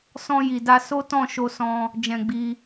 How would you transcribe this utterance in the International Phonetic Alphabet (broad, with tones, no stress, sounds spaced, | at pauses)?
s ɔ̃˧ j i˨ d a˧ s o˦ t ɔ̃˦˨ ʃ o˧ s ɔ̃˧ | d͡ʒ ɛ̃˧ ɡ͡b i˧